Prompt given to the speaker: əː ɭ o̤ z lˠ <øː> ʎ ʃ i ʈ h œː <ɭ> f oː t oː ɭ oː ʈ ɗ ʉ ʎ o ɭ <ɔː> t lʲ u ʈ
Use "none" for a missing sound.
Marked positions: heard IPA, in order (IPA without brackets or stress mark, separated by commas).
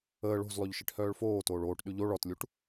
ø, ɭ, ɔ